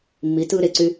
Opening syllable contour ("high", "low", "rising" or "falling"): rising